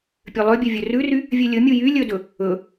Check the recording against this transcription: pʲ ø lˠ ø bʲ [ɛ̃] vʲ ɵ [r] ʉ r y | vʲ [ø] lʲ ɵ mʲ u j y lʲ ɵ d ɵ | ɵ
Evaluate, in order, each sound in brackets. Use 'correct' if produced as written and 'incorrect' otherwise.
incorrect, correct, correct

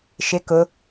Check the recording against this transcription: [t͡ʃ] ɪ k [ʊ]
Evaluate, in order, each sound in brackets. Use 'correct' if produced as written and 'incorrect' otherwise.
incorrect, correct

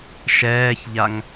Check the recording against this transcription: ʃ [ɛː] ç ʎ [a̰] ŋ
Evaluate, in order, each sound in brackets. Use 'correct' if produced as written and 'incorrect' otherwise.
correct, incorrect

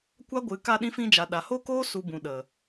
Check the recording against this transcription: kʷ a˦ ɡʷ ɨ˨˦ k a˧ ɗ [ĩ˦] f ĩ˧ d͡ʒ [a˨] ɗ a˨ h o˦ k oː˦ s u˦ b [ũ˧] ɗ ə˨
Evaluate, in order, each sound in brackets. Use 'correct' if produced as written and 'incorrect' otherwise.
incorrect, correct, correct

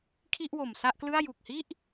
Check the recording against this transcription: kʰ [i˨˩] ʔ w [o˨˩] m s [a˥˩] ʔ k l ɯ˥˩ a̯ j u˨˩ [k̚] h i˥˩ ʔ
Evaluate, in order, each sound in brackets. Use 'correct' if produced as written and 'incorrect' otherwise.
incorrect, correct, correct, correct

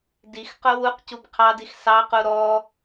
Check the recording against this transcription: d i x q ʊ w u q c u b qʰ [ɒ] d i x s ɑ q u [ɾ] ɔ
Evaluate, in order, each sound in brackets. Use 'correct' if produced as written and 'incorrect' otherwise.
incorrect, correct

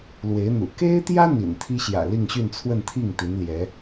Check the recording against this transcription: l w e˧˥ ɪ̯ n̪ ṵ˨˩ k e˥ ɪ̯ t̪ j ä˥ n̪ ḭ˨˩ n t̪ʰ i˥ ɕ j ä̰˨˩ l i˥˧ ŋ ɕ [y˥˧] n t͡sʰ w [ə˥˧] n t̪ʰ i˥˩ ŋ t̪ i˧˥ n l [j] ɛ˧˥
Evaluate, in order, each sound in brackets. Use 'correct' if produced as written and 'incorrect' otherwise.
correct, correct, correct

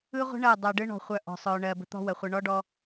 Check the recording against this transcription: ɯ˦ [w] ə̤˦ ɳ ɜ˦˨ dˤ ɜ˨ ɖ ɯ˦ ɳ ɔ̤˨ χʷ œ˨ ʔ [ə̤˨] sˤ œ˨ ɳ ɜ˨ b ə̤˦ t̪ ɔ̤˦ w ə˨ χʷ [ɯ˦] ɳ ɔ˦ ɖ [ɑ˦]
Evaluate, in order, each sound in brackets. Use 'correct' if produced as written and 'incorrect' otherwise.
incorrect, incorrect, incorrect, incorrect

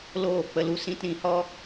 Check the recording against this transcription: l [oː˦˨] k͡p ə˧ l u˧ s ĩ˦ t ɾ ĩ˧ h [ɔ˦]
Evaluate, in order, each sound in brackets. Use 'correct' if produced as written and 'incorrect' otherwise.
correct, correct

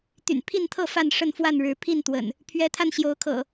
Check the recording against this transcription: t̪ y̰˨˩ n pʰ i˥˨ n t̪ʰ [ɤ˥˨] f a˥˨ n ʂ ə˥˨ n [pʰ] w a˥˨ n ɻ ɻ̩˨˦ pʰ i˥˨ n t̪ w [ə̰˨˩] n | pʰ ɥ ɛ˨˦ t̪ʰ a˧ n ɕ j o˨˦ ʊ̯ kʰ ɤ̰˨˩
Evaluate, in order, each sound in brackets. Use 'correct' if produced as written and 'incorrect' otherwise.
correct, incorrect, correct

